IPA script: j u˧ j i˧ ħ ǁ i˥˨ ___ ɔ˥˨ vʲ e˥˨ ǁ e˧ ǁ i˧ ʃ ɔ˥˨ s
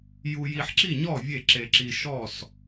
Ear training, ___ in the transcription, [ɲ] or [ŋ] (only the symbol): ɲ